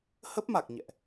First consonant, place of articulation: glottal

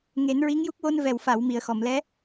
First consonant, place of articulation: velar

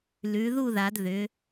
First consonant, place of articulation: alveolar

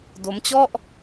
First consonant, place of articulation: alveolar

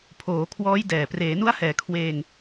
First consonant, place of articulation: labial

